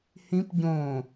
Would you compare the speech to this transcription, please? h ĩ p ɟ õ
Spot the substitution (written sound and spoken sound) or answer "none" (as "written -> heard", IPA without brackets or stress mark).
none